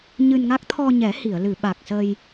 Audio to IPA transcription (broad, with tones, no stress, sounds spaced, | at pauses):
ɲ ɨ˧ n ŋ a˦˥ k̚ t̪ʰ ɔ˧ ɲ ɛ˨˩˦ h i˨˩˨ ə̯ l ɨ˨˩˨ ɓ a˨˩ k̚ s ə˧ j